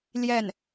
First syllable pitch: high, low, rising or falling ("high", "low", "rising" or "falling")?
falling